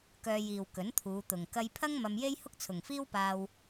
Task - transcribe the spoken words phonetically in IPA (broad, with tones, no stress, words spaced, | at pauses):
kœː˧jiː˨w kɵ˨˥nt̪ʰuː˨˧ t̪ʊ˨ŋ kɐ˧jpʰɐ˥ŋ mɐ˧mje˥j hʊ˥k̚t͡sʰʊ˨ŋfiː˥wpaː˧w